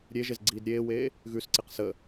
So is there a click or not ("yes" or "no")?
yes